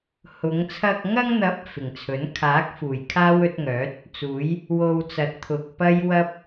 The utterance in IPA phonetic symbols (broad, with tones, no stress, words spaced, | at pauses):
hʊ˨˧ŋ t͡sʰɐ˨k̚ŋɐ˧ŋn̪ɐ˨˥p̚ fɪ˨˩ŋt͡sʰɵ˨˥n kʰaː˨˥k̚ fuː˨˩jkʰaː˥wɵ˨˥t̚ŋœː˨˥t̚ | t͡suː˨˥j | wo˧wt͡sɐ˨˥t̚ t̪ʰʊ˨k̚ pɐ˥jwɐ˥p̚